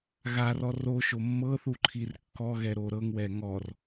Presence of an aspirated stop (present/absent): present